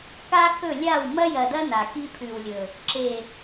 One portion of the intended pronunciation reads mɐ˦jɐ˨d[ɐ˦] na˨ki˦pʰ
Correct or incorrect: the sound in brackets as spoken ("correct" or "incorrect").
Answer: correct